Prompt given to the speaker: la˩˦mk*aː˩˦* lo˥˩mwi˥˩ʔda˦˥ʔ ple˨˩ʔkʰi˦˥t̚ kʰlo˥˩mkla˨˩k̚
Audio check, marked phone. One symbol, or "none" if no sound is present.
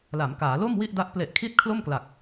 aː˩˦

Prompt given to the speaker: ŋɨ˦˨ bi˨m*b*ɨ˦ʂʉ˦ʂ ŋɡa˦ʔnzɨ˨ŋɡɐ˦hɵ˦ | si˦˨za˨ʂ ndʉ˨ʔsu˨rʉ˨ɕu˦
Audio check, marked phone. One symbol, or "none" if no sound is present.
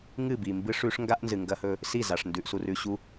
b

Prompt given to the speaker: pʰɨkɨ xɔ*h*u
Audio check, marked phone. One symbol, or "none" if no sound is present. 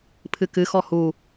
h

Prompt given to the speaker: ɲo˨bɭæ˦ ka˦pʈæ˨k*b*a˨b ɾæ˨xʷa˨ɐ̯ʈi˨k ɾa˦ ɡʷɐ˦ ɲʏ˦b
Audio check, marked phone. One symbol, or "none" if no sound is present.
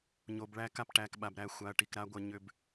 ɓ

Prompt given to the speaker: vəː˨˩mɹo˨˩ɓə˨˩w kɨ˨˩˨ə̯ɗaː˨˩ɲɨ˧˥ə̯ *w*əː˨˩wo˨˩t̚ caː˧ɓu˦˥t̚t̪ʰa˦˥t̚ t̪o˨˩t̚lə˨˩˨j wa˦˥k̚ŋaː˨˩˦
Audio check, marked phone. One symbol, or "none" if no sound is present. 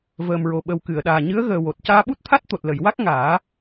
ɣ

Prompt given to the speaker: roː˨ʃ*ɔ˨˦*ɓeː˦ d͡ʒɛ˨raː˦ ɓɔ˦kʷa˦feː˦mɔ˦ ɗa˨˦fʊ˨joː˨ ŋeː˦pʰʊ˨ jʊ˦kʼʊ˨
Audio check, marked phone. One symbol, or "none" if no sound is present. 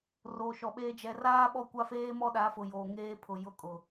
ɔ˨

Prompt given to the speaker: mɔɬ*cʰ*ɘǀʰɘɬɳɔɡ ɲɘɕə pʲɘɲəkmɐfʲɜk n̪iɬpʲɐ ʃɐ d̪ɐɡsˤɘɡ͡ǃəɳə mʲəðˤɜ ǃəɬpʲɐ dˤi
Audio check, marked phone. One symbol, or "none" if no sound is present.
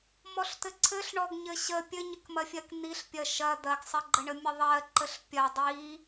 t̪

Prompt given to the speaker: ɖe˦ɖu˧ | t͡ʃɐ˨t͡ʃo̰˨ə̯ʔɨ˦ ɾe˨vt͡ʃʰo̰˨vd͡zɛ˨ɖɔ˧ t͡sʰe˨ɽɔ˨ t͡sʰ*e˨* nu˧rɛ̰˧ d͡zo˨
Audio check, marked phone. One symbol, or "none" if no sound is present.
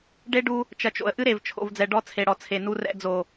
e˨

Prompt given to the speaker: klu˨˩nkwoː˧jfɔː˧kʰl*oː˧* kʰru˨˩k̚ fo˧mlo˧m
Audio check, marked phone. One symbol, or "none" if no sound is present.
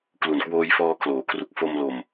oː˩˦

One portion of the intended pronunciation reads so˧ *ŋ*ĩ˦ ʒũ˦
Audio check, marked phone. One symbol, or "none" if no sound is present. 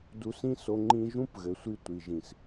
ŋ͡ǃ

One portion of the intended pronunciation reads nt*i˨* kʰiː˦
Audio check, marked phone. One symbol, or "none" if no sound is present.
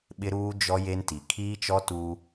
i˨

